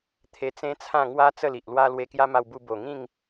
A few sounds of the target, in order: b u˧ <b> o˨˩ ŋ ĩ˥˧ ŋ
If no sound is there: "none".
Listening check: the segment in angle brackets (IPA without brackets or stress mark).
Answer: b